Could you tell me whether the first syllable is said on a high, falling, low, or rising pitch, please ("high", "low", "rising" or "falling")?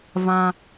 high